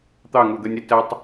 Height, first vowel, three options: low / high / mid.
low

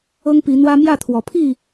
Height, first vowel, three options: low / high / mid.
mid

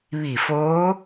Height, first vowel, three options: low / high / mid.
high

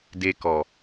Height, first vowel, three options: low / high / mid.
mid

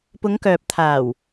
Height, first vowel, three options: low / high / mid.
high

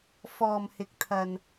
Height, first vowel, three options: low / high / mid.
mid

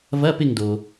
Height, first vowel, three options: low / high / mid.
low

